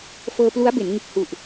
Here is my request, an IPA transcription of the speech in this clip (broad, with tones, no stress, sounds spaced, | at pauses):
f ɤː˧ p l u˦˥ a̯ b e˩˦ n ŋ ɯ˨˩ k̚ h u˨˩ ʔ